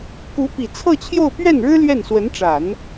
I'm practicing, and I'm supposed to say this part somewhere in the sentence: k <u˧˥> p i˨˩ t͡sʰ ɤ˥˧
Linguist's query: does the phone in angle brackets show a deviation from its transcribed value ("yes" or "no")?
no